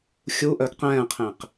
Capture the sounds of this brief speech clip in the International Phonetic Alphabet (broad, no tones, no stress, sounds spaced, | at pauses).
xʲ u ʔ œ ɡ q ɛ̃ː qʰ ẽ q